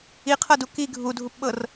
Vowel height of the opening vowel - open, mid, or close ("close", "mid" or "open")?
close